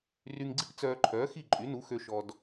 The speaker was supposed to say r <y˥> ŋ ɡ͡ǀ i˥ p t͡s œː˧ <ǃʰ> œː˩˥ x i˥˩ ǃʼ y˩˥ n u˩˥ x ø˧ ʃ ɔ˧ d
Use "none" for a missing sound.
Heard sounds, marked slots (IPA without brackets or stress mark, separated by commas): y˧, ǃʰ